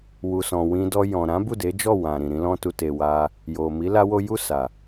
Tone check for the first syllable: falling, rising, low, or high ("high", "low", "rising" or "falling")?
low